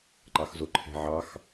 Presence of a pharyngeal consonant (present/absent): present